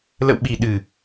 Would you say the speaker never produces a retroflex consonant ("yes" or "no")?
yes